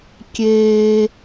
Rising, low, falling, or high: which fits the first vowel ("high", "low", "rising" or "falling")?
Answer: high